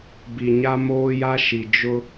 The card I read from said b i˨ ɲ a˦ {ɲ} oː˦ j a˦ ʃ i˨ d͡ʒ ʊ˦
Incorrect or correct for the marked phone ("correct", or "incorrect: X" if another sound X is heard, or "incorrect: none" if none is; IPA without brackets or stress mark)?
incorrect: m